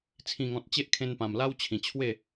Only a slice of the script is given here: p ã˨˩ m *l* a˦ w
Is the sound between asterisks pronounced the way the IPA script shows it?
yes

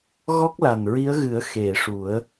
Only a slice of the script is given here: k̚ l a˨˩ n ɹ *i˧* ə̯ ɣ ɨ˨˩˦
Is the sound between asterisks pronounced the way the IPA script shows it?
no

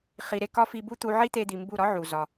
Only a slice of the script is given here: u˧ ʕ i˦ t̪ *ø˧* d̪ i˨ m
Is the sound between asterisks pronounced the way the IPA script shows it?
no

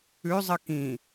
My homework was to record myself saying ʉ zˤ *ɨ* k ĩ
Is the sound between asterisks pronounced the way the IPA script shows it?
yes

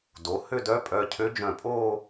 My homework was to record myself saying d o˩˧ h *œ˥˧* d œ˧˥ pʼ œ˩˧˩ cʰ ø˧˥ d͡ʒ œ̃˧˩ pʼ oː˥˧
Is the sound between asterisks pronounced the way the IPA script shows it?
no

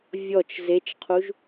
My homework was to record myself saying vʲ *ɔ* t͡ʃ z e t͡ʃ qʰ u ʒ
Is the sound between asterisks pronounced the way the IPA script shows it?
yes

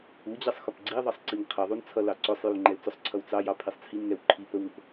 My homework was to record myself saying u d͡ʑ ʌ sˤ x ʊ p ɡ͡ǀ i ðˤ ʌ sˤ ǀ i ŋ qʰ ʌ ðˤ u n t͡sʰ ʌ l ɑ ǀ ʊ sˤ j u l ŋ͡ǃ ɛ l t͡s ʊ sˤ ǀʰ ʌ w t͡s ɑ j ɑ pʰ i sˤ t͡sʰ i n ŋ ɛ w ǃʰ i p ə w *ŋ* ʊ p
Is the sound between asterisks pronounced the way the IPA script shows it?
yes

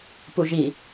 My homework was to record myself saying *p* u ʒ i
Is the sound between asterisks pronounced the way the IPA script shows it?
yes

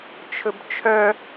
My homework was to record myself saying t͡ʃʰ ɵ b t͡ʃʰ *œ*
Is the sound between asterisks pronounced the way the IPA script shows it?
yes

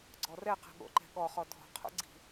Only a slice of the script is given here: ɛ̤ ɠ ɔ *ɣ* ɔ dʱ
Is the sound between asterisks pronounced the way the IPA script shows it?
no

